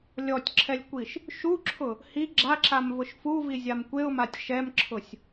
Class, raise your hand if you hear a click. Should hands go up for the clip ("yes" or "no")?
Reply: yes